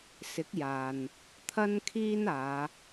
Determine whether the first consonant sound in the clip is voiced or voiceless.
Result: voiceless